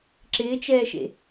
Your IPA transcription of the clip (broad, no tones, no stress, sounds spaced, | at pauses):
ǁ ɪː t͡ʃ ɛː ʃ ḛ